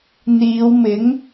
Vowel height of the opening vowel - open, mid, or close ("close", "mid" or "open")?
close